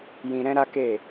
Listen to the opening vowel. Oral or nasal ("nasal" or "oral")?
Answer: nasal